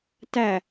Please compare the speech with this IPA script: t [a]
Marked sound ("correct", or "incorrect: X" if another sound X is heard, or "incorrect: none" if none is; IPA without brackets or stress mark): incorrect: æ